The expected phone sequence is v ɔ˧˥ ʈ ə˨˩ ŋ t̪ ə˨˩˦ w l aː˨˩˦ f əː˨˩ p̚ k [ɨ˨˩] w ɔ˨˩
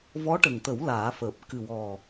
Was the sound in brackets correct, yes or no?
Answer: yes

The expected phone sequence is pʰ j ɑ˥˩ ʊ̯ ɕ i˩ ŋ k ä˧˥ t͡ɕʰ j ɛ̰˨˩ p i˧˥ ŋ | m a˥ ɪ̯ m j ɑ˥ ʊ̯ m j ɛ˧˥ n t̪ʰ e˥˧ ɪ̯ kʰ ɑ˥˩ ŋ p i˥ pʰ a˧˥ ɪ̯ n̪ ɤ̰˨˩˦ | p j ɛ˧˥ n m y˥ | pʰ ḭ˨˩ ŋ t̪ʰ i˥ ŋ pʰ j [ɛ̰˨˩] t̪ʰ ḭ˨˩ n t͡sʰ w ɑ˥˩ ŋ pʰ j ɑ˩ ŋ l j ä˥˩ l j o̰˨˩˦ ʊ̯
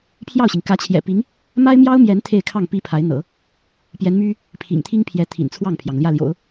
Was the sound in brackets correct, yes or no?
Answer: no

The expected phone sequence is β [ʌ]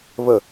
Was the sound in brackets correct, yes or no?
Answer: no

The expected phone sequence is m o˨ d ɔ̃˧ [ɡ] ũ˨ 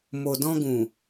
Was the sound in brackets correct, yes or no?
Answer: yes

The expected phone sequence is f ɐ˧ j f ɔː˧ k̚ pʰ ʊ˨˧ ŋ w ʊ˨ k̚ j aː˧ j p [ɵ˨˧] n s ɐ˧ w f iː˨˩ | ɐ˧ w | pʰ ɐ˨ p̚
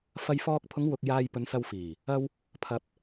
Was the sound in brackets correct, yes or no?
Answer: yes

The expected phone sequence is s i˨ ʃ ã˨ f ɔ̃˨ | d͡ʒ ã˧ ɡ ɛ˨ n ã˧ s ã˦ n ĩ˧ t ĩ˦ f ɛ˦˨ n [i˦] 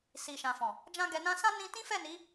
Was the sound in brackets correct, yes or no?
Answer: no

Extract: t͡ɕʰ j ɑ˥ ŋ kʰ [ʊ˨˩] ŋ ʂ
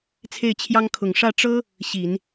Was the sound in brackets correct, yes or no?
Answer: yes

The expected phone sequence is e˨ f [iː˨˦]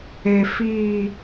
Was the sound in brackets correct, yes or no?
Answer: no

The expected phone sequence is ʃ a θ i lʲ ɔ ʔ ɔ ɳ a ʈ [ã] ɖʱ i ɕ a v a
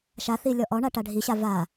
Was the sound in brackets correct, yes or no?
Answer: no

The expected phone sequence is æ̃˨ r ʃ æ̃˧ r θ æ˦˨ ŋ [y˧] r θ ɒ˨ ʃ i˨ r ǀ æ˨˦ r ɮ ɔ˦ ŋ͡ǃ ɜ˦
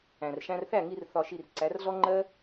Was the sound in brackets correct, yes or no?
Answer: no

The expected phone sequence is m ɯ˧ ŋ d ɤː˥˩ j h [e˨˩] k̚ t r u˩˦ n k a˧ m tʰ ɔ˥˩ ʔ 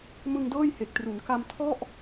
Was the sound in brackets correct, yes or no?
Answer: yes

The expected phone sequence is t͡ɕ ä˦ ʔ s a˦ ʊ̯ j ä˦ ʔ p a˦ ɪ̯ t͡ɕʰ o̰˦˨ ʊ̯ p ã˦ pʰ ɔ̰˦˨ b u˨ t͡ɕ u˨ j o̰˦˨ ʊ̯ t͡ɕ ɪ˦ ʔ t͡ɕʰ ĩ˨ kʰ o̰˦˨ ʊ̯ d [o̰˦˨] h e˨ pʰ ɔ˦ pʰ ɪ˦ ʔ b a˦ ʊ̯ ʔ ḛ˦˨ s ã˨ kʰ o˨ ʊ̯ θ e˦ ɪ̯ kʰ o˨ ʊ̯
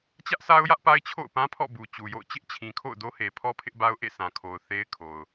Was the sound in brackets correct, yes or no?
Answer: no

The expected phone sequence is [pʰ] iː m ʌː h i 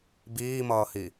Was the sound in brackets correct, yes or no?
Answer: no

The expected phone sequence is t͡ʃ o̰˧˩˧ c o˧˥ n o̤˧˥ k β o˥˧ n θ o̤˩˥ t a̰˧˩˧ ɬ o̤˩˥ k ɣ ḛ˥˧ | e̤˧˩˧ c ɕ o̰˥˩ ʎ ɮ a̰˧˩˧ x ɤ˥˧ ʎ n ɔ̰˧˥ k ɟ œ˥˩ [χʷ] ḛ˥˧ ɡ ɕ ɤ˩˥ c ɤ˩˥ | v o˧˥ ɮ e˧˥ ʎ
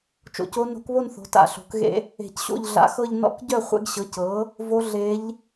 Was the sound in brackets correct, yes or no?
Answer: yes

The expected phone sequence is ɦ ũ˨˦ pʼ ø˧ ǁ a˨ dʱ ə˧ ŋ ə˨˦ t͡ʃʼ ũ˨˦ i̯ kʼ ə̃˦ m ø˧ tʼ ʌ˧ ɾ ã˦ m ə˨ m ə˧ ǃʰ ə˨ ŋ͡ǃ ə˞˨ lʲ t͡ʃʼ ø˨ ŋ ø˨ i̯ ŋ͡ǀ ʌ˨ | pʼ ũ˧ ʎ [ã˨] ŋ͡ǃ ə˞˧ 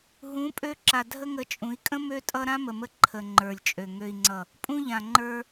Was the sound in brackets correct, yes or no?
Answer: yes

